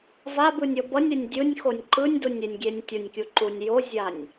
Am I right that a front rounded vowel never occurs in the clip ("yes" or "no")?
yes